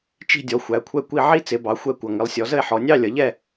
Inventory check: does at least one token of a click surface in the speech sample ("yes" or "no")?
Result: no